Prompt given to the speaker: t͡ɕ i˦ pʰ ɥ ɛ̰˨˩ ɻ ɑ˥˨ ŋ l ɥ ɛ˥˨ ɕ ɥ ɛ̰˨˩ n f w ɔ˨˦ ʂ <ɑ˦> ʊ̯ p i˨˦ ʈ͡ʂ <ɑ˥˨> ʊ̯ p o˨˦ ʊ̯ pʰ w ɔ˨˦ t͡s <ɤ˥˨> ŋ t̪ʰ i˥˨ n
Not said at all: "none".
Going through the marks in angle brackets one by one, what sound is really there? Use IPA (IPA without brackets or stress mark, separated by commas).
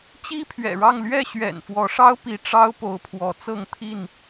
ɑ˦, ɑ˦, ɤ˥˨